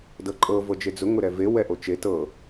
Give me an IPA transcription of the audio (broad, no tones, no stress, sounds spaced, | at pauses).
d ɤ ǃʼ ɤ v ɤ d͡ʒ e d͡z ʊ ŋ ʊ ɾ ɛ v e w ɛ ʔ o t͡ʃ e t ɤ